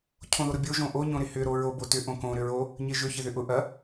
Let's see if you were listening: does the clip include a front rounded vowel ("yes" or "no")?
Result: yes